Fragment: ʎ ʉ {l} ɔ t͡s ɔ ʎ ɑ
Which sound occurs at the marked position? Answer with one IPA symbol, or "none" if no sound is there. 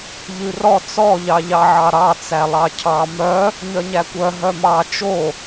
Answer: r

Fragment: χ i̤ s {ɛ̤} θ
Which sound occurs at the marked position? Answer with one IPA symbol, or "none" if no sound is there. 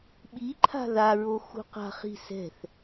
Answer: ɛ̤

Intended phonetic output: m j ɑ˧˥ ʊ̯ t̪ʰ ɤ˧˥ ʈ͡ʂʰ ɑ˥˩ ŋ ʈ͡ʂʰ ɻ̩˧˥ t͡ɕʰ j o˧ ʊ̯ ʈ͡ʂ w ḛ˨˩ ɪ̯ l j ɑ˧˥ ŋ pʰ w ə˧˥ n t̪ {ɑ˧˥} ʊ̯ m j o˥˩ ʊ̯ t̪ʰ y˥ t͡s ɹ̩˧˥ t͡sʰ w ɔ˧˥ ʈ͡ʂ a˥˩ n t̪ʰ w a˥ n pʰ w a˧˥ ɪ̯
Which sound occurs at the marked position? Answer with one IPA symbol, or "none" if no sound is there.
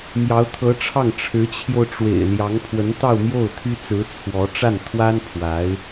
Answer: ɑ˥˧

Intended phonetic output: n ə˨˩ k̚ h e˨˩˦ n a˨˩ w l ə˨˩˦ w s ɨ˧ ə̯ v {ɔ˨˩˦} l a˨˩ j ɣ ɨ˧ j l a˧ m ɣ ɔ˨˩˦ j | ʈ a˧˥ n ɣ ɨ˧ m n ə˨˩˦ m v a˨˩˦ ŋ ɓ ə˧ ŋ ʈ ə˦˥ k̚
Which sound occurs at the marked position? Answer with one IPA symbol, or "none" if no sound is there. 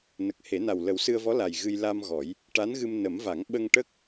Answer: ɔ˧˥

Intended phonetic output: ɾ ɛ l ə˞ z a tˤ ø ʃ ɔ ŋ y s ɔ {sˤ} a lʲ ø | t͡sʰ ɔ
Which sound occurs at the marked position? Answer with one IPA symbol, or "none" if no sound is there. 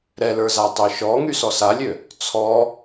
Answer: s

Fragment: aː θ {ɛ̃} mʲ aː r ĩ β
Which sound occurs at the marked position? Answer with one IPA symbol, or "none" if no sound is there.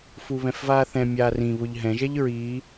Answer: ɛ̃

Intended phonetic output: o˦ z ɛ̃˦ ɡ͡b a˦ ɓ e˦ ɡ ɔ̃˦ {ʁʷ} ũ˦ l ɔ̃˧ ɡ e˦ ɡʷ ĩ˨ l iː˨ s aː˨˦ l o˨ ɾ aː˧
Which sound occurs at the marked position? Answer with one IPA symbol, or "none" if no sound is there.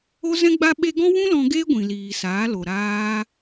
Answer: w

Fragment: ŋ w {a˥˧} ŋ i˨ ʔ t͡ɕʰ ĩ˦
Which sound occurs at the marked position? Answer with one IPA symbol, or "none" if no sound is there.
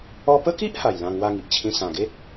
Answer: a˥˧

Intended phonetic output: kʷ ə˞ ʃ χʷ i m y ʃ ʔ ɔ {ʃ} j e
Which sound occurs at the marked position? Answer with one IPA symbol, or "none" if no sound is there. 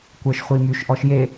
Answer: ʃ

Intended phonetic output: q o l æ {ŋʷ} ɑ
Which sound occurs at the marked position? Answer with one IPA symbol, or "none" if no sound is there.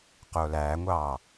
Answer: ŋʷ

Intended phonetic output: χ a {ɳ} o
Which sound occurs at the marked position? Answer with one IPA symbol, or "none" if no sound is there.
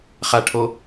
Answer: ʈʰ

